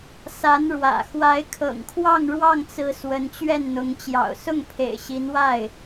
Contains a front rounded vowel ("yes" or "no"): no